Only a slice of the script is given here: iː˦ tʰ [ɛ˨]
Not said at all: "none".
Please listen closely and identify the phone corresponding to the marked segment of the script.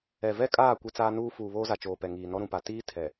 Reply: ɛ˨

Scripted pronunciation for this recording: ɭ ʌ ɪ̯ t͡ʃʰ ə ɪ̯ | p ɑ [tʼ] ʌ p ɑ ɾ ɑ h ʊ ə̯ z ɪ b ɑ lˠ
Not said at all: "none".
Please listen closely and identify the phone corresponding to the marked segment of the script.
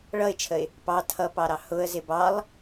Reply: tʰ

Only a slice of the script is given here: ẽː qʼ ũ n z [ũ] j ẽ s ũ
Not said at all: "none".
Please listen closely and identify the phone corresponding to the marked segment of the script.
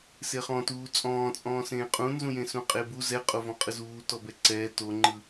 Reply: ũ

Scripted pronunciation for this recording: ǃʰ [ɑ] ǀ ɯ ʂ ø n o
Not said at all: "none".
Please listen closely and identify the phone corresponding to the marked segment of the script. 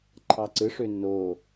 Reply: ɑ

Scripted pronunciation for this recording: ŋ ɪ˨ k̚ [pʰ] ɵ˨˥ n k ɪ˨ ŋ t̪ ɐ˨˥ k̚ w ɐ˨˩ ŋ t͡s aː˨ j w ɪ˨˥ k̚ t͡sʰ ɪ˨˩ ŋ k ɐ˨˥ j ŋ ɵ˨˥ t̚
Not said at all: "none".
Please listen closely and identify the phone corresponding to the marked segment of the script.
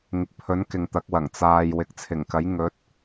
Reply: pʰ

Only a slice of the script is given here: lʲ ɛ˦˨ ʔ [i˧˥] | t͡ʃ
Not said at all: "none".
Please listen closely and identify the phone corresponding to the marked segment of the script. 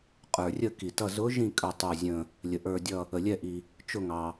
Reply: i˩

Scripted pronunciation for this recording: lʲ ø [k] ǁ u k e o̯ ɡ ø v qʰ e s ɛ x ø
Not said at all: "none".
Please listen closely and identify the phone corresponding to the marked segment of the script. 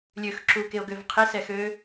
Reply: x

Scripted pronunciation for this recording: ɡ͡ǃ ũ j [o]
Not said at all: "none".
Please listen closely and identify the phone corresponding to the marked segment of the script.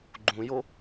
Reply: o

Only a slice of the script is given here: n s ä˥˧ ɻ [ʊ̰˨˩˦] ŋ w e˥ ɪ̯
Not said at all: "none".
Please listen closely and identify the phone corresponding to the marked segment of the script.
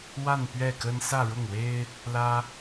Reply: ʊ˥˩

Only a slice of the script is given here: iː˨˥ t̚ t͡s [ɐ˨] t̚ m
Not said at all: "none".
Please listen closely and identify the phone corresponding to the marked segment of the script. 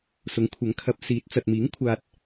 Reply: ɐ˨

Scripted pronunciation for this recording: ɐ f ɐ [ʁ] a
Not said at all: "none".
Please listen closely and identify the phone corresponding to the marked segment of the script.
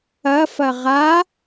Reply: ʁ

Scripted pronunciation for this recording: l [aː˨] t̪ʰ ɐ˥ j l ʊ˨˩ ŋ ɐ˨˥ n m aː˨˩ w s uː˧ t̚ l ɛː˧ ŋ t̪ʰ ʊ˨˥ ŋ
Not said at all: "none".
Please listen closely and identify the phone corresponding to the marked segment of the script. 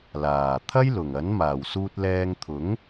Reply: aː˨˩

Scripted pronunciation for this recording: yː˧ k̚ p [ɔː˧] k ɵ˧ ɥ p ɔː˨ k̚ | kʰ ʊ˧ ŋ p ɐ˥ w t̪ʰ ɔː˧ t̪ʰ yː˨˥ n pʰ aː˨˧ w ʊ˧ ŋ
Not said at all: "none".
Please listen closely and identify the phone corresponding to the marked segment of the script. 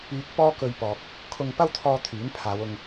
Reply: ɔː˥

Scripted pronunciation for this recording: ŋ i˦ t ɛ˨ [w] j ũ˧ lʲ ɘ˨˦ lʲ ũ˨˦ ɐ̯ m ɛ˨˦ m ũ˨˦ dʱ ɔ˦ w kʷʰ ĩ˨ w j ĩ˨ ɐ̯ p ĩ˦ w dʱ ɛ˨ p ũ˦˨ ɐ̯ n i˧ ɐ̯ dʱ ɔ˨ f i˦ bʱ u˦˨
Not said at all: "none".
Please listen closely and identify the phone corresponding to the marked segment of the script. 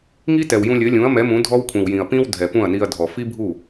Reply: w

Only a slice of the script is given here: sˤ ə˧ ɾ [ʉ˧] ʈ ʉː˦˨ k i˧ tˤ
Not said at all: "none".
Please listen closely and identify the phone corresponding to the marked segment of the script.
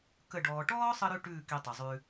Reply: ʉ˧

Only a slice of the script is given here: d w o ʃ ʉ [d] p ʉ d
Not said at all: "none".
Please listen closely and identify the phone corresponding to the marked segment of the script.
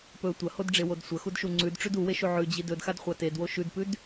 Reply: d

